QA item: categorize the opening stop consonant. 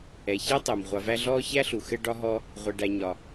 plain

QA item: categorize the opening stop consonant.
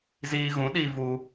implosive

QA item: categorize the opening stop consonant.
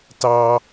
plain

